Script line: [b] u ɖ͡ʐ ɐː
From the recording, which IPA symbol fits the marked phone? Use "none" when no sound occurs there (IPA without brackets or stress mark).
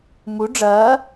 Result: m